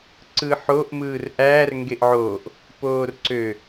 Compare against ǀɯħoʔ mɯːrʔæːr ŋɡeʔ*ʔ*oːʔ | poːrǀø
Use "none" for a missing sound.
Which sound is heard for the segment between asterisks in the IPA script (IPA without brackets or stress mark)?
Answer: ʕ